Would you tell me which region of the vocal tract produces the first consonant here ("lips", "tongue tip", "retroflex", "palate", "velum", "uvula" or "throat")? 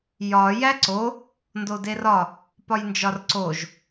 palate